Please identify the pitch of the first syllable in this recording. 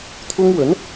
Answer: high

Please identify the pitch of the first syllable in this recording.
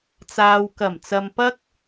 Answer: low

